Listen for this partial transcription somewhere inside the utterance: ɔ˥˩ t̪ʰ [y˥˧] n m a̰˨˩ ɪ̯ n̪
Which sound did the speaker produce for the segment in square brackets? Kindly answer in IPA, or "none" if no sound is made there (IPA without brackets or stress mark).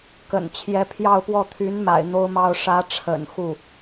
y˧˥